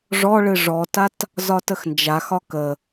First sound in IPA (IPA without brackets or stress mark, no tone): ʐ